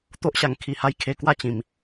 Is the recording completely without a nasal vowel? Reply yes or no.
no